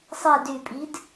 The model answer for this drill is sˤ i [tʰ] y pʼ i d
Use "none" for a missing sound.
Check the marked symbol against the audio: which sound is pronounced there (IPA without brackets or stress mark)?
d